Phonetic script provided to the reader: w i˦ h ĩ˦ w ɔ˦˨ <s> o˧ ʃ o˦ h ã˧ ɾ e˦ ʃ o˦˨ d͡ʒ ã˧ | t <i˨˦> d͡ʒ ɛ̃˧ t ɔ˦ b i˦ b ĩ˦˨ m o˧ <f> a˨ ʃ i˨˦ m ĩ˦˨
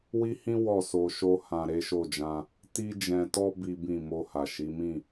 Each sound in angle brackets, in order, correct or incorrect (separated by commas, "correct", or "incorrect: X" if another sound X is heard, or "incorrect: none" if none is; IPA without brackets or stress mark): correct, incorrect: i˦, incorrect: h